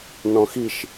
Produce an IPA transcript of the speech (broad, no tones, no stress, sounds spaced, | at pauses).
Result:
n ɔ̃ x i ʃ